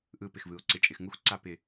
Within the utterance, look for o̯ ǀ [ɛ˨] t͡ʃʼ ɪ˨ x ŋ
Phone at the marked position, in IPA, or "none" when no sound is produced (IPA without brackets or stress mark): ɪ˨